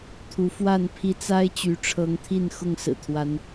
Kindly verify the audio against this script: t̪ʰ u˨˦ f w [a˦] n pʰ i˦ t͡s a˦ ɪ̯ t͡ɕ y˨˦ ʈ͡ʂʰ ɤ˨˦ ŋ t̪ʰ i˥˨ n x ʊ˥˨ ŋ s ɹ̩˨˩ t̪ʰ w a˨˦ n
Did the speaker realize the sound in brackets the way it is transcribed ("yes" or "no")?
no